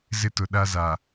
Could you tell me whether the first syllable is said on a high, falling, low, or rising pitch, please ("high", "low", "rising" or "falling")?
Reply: high